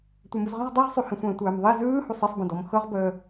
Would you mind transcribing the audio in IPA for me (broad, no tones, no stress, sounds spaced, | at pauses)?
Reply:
tʷ ɛ m u z ʁ ə̃ ʁ dˤ ɛ ʁ sˤ y h ə̃ sʷ ə̃ː tʷ əː m ðˤ i z ɯː h u sˤ ə sˤ b ə̃ d ɔ m x ɤ ʁ b əː